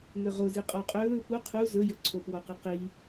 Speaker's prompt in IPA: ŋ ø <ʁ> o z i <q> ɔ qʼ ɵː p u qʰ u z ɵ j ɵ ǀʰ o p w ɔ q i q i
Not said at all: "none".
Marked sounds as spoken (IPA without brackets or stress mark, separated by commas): ʁ, qʼ